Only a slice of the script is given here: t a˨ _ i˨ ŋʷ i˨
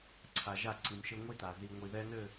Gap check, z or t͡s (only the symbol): z